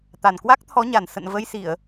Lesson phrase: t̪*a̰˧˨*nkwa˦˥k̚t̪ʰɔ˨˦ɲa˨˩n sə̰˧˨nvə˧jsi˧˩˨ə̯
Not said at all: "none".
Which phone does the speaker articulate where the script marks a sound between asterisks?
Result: a˨˩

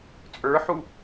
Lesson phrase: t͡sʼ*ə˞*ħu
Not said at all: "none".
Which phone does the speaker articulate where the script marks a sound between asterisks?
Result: ə˞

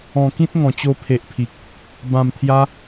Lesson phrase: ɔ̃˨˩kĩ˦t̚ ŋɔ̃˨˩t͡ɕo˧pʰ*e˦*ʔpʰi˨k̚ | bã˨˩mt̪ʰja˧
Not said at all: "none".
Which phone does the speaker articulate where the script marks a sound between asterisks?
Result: e˨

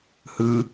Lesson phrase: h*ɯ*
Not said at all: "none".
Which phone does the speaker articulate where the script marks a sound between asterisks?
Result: ɯ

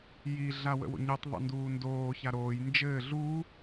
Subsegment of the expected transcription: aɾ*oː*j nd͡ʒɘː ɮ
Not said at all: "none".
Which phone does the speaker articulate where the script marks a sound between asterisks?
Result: oː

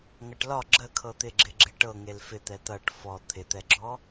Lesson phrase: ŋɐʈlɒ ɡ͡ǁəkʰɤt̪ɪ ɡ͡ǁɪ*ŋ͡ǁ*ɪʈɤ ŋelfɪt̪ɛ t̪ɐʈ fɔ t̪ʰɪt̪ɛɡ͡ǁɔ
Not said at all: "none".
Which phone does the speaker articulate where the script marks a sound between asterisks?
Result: ɡ͡ǁ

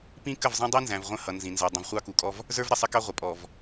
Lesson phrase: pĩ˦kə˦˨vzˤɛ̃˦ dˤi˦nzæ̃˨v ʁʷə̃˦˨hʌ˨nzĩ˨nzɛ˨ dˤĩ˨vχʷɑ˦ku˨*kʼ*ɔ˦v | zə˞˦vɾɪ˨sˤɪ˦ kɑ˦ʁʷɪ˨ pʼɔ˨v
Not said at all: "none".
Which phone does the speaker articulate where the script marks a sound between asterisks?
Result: kʼ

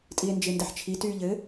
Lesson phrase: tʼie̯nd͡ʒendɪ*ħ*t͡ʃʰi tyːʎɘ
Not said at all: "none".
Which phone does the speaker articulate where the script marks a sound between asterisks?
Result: ħ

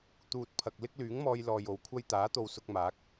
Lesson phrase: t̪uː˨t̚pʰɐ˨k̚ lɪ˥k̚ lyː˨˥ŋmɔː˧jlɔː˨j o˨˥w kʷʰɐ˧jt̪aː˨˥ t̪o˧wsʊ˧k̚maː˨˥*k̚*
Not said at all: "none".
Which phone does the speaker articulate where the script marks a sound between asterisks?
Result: k̚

